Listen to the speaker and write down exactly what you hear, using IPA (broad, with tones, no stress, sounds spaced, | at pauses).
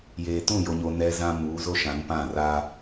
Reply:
j eː˨ t ũ˦˨ j o˨ ɲ o˨ n ɛ˦ z ã˦ m uː˨˦ z o˦ ʃ ã˨˦ n p ã˦˨ r a˦